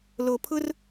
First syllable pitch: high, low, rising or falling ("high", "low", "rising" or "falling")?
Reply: low